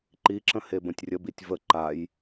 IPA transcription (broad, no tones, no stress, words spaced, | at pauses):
ǃiǁə̃ hebə̃tʲrʲəbitʲ və ǃaj